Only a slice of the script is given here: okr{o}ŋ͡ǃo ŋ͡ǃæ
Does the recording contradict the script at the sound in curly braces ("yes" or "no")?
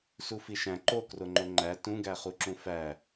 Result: no